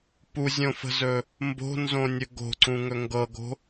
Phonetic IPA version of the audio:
p u zʲ õ f ə̤ z ɵ | m b o̤ n z õ nʲ ɵ ɡ o̤ ǀ ũ ŋ ɵ ŋ ɡ ɤ ɡ o̤

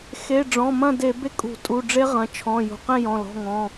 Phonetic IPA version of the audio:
x e˩˧˩ ɖ͡ʐ ɔ̃˩˧˩ m ɐ̃˥˨ d e˧˩˧ b e˥˨ kʼ ṳ˧˩˧ tʼ u˩˧˩ ɖ͡ʐ e˦˥ ʁ ɐ̃˩˧˩ t͡ʃʰ ɔ̃˩˧˩ j ṳ˩˧˩ q ẽ˥˨ j ɔ̃˩˧˩ l ɔ̤˩˧˩ ŋ ɔ̃˩˧˩

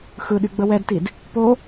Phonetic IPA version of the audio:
x ɯ ɗ y ɡ͡b ə w ɛ d t i d | p o

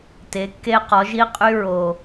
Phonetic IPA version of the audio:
t e˩˧ kː e˧ q ɔ˩˧ ʒ i˧ qʼ y˧ ɹ o˩

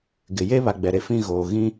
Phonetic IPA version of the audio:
ɡ ɪ˨ j e˦ β a˨ ɡ͡b ɛ˨ ɾ e˨ f ĩ˦˨ ɣ oː˨ ɣ ĩ˦

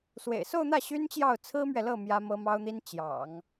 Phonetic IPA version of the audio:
s w ḛ˨˩ ɪ̯ s o˥˧ ʊ̯ n̪ ä˥˩ ɕ y˥ n t͡ɕ j ɑ˥˩ ʊ̯ t͡sʰ ɹ̩˥ m ɥ ɛ˨ l ɤ˥˩ m j ä˥ m ɤ˥ m ɑ˥ ʊ̯ n̪ i˥ n t͡ɕ j ɑ̰˨˩˦ ŋ

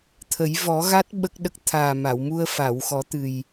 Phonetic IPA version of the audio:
t̪ʰ ə˨˩˦ j v ɔ˨˩˦ ɣ a˦˥ t̚ ɓ ə˦˥ k̚ ɗ ə˦˥ k̚ t̪ʰ aː˨˩ m a˨˩˨ w m u˧ ə̯ f a˨˩˨ w x ɔ˨˩˦ t̪ ɨ˨˩ j

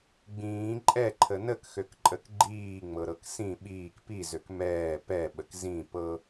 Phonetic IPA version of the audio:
ɡ͡b ĩː ǃʼ ɛ ǃʰ ə n ə k x ø k ǃʼ ə k ɡ͡ǃ iː ŋ͡m ɤ ɾ ɤ k s ĩ ɓ iː k p i z ø k m ɛː p ɛ ɓ ə k z ĩ p ɤ

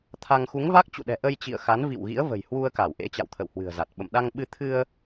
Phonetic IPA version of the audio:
t̪ʰ a˧ ŋ x u˨˦ ŋ v a˦˥ k̚ t͡ɕ ṵ˧˨ ɗ ɛ̤˨˩ ʔ ə˧ j t͡ɕ ḭ˧˨ ə̯ x a˨˦ n v ḭ˧˨ w ɣ ḭ˧˥ ə̯ v ə̤˨˩ j h w u˧ ə̯ k a˧˩ w ʔ ḛ˧˥ t͡ɕ a̰˧˨ w t̪ʰ ə̰˧˨ w h w ɨ̤˨˩ ə̯ z a˨˩ t̚ ɓ ə̰˧˨ m ɗ a˧ ŋ ɓ ɨ˧ t̪ʰ ɨ˧ ə̯

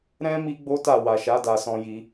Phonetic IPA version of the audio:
ɾ ɛ̃˦ m i˦ ɡ͡b o˦ t a˦˨ w a˨ ʃ a˨˦ d a˧ s ɔ̃˧ j i˧

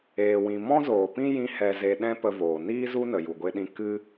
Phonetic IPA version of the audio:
eː˨ w ĩ˨ m ɔ̃˦ z oː˨ p ĩ˦ j ĩ˧ h ɛ˨ z e˨ ɗ ɛ̃˦ p ə˧ v oː˨ n iː˦ z u˦ n ə˨ j u˨ ɡʷ e˧ ɗ ĩ˧ k ɨ˦

